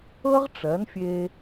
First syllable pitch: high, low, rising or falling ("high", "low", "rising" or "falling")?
high